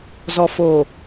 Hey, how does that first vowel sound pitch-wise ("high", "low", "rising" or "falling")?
low